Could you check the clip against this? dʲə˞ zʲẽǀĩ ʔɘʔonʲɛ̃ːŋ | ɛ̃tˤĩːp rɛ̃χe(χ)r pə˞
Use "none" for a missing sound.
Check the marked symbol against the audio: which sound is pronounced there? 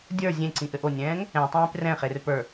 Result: none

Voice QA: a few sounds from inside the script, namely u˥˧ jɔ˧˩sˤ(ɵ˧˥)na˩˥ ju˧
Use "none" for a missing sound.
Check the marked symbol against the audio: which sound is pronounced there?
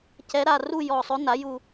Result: ɵ˧˥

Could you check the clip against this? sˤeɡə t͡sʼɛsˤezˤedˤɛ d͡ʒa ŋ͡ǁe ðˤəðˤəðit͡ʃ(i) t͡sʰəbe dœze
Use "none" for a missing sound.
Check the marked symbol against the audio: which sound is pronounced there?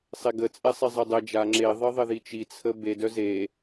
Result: i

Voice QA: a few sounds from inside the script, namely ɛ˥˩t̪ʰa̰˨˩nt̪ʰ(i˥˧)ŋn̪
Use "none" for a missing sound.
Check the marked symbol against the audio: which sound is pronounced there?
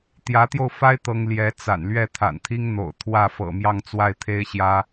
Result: i˥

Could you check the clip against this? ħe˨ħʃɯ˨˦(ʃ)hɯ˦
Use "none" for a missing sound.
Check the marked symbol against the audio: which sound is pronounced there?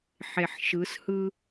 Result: s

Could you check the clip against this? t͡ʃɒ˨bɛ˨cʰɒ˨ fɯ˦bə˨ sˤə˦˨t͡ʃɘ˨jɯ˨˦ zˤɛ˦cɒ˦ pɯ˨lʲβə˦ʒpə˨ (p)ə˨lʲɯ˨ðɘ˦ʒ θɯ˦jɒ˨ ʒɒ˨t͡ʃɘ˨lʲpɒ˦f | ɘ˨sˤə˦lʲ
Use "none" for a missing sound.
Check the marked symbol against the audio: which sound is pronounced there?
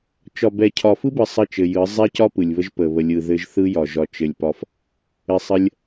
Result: β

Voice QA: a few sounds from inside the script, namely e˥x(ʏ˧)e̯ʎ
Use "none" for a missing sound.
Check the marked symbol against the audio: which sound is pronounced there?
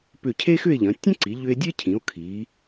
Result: ʏ˥˧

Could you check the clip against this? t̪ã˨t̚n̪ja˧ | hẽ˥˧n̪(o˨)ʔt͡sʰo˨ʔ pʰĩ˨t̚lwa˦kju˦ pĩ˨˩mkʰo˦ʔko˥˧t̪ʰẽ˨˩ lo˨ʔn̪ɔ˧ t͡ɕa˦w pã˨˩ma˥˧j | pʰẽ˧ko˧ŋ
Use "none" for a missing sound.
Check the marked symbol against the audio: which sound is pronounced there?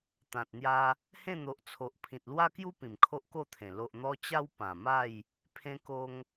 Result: o˨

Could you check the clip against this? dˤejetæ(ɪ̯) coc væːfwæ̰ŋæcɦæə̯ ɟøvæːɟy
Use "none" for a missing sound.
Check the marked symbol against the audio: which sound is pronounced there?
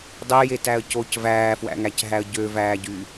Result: ə̯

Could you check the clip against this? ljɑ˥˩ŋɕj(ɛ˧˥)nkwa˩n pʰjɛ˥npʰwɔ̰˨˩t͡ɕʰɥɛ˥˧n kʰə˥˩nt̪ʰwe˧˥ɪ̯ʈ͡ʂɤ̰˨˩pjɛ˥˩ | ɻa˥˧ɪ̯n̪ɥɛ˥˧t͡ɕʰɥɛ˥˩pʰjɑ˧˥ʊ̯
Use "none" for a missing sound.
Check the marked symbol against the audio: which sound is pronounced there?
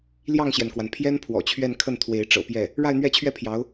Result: ɛ˩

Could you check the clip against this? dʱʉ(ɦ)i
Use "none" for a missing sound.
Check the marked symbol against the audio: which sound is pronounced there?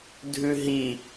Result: ɦ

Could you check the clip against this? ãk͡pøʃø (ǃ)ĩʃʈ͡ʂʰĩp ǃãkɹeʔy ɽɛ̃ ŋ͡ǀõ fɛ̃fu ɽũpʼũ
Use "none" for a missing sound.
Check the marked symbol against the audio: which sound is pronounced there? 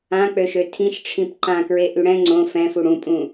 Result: tʰ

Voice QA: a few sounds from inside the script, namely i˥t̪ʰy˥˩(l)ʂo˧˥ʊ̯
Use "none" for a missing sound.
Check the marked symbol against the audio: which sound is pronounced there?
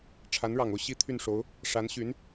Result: n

